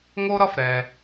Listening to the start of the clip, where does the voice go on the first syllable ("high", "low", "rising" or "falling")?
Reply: high